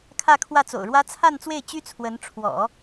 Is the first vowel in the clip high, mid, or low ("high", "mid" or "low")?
low